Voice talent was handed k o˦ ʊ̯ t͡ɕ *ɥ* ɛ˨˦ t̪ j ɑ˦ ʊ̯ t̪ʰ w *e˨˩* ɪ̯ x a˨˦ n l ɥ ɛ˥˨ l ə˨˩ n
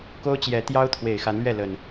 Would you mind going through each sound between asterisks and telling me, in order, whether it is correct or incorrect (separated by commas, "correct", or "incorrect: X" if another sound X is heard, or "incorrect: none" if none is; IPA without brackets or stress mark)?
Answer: incorrect: j, correct